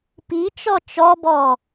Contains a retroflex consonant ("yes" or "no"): no